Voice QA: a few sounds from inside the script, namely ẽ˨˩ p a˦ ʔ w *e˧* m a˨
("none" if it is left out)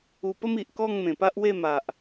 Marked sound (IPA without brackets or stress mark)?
e˥˧